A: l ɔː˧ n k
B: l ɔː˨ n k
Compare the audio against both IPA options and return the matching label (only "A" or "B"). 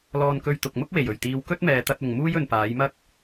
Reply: A